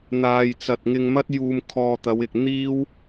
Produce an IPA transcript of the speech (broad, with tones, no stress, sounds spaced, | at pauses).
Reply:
n̪ aː˨ j t͡s ɐ˨ t̚ ŋ ɪ˧ ŋ m ɐ˥ t̚ j uː˧ m kʰ ɔː˧ t̪ ɐ˨˧ w ɪ˨ k̚ n̪ iː˥ w